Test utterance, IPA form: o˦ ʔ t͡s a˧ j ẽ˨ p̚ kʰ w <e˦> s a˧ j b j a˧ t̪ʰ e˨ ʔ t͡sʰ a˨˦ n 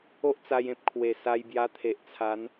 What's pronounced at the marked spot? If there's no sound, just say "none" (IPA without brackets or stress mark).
e˨˩